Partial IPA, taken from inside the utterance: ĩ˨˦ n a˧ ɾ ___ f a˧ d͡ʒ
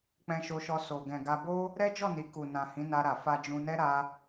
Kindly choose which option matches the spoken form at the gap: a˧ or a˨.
a˨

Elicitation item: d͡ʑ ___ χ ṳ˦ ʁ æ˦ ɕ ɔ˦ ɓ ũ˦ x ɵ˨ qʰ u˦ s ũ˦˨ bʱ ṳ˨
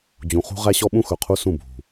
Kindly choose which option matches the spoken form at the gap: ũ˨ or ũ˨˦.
ũ˨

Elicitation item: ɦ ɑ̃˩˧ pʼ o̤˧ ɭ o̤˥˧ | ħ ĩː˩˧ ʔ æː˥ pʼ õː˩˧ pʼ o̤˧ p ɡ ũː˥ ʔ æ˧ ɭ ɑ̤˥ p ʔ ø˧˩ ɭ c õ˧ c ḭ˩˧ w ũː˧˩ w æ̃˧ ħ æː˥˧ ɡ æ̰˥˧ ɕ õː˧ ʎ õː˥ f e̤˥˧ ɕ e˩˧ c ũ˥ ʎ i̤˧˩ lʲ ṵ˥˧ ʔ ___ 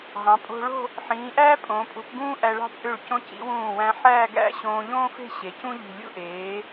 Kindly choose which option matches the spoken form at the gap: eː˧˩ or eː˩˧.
eː˩˧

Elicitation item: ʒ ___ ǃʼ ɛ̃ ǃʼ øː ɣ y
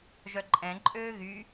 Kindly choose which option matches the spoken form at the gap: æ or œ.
œ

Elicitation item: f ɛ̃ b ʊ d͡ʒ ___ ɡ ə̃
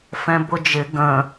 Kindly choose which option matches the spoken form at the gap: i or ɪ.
ɪ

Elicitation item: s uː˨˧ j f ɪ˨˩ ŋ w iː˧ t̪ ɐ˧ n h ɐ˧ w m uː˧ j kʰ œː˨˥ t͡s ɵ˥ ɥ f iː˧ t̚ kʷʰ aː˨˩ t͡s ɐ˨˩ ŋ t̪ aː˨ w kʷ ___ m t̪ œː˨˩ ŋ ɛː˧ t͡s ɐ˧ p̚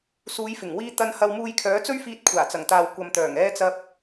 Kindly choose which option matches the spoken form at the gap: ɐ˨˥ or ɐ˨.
ɐ˨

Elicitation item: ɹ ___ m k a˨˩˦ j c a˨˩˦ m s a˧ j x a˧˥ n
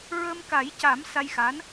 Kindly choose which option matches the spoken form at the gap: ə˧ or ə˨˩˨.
ə˧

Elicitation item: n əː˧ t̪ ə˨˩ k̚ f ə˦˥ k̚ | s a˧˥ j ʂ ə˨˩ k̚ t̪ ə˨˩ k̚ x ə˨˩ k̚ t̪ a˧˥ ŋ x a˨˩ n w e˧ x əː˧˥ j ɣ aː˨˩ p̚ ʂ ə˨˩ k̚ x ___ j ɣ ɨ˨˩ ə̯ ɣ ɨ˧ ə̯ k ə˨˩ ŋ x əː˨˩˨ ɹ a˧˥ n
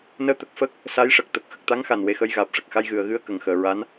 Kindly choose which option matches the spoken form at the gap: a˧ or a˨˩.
a˧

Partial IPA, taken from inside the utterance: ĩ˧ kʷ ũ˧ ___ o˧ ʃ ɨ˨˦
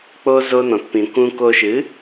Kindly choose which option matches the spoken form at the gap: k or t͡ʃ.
k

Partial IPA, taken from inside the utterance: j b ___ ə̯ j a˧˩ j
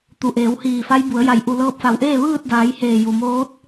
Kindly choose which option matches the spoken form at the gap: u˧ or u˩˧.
u˩˧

